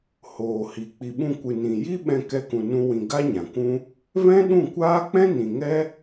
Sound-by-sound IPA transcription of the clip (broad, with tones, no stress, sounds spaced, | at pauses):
h oː˨ h i˨ k͡p i˨ ɓ ũ˧ kʷ ɨ˨ n ĩ˨ j i˦ ɓ ɛ̃˧ k ɛ˦ k ũ˧ n ũ˦ w ĩ˧ ɡ a˦ ɲ ã˨ kʷ ũ˦ | v ɛ̃˦ ɗ ũ˦˨ kʷ aː˦ k͡p ɛ̃˦ n ĩ˨ ŋ ɛ˦